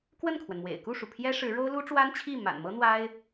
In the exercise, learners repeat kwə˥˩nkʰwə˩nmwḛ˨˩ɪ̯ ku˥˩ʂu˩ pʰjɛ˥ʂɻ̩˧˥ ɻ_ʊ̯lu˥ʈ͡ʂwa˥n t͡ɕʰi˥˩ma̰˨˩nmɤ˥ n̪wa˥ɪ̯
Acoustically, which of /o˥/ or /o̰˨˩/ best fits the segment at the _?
o˥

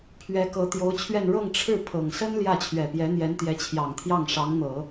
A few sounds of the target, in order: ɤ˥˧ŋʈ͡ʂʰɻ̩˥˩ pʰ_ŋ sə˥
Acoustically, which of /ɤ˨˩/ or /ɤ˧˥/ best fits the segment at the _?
ɤ˨˩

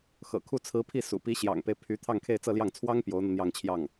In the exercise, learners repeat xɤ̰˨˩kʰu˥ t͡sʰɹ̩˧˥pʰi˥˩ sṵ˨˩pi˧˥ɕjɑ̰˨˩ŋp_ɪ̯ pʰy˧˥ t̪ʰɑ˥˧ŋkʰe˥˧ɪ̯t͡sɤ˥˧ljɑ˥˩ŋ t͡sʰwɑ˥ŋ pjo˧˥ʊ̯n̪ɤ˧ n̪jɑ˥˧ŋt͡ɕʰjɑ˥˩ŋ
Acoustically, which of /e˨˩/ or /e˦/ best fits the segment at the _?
e˦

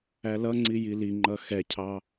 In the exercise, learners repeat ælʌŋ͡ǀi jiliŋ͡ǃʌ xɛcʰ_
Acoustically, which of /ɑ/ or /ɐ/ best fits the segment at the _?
ɑ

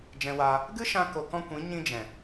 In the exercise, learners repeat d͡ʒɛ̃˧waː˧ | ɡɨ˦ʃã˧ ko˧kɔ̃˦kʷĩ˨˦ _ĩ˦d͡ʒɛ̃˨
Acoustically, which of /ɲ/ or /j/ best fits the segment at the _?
ɲ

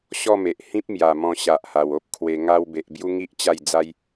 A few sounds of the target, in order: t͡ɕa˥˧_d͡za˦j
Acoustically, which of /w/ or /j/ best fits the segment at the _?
j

